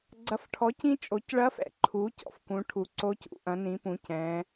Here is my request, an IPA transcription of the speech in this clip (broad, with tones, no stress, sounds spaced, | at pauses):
ɡ͡ǀ ɐ˩˥ f ʈʰ ɔ˩˥ c ĩ˧˥ t͡ʃʼ o˩˧ c ɭ ɐ˧˥ f ɛ̰˩ ǃʰ u˩˥ c ɔ̰˩ f k ũ˩˧ ʈʰ u˩ ǀ o˧˥ c ṵ˩˧ ʔ ɐ̃˩˥ n ĩ˩˥ p ũ˩˧ c ɛ̃˩˧